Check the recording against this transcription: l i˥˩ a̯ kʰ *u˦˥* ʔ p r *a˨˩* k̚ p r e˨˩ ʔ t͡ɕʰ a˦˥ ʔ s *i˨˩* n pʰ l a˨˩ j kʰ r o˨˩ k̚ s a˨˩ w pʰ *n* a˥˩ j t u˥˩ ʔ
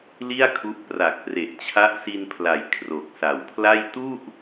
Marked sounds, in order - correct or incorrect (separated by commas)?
correct, correct, incorrect, incorrect